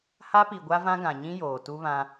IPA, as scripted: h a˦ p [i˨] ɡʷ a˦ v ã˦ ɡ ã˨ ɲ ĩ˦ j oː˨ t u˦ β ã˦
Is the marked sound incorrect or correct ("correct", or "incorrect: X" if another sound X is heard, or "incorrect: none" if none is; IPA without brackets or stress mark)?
correct